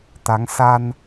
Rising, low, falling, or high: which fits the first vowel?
rising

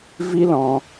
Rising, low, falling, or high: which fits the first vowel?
high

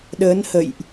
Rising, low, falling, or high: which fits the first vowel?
rising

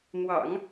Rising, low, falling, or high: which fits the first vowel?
low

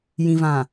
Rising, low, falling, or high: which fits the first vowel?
low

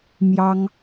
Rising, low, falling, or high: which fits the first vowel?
high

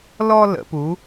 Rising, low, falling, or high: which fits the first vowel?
high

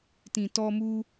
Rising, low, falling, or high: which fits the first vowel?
low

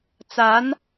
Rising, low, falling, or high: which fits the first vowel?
rising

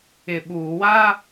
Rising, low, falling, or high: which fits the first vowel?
low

